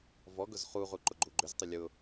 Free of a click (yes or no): no